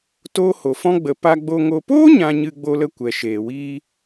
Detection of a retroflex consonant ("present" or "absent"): absent